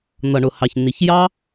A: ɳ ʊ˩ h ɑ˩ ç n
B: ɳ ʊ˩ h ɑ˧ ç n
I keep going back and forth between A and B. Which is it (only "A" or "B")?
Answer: A